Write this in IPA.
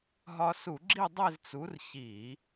ɦ ɒ˧ s u˧˩˧ ɡ͡ǁ i˥˧ dˤ e˥˧ z t͡s u˨˥ r ç i˧˩˧

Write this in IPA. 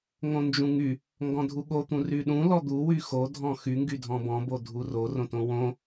ŋ õ n d͡ʒ ũ ŋ y | ŋ ɡ ɔ̃ dʱ u ɠ o t̪ ũ r y ɗ ũ l ɔ d̪ u w y x o dʱ ɔ̃ x y ŋ ɡ y dʱ ɔ̃ b ɔ̃ b o dʱ u r o r õ t õ w õ

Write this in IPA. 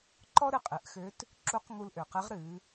ǃ ɔ˥ ɾ ɨ˧ qʼ ɨ˩˧ ʔ x ø˧˥ t | ǁ u˧˥ q ŋ u˧ l ʔ ø˩ q ɨ˧˥ ʁ ɾ ɨ˩˧

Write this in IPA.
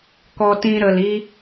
k ɔ˧ t ĩ˧ ɾ ə˨ l i˧

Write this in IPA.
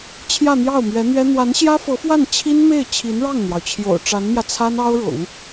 t͡ɕʰ j ä˥˧ n̪ j ɑ˥˩ ʊ̯ m ɥ ɛ˧˥ n̪ ɥ ɛ˥ n̪ w a˧˥ n ɕ j ä˥ f ɤ˧˥ f w a˥˩ n t͡ɕʰ i˥ n m e˥˩ ɪ̯ t͡ɕʰ i˧˥ n ɻ ɑ˥˩ ŋ n̪ j ɑ˩ ʊ̯ t͡ɕʰ j o̰˨˩ ʊ̯ ʈ͡ʂ a˧˥ n m j ä˧ t͡sʰ a˥ n ɑ˥ ʊ̯ ɻ ʊ̰˨˩˦ ŋ

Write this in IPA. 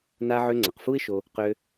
n a˧ ʕ ø˧ ŋ͡ǀ ʌ˩ q f u˥ ɪ̯ ʃ o˧ | q ø˧

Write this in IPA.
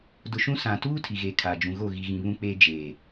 d ʊ˨ ʃ ũ˦ s ã˨ t uː˦ tʰ i˨ ɣ eː˨ kʰ aː˨ d͡ʒ ũ˨ ɣ o˦˨ ɣ i˨ ɣ ĩ˨ β ũ˦ k͡p eː˦ d͡ʒ eː˨

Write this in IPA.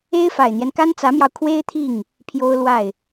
e˥ ɪ̯ f a˨˩ ɪ̯ n̪ j ɛ˦ n k a˥ n t͡s ä˧˥ m j ɑ˧ ʊ̯ kʰ w e˥ ɪ̯ t̪ʰ i˥˩ ŋ | pʰ j o˥ ʊ̯ l w a˥˩ ɪ̯

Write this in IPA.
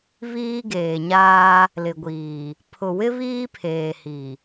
β iː˦ ɡ eː˨ ɲ aː˦ | l ɪ˨ ɡʷ iː˨ | pʰ ʊ˨ w ɪ˦ β iː˦ pʰ eː˨ h i˨

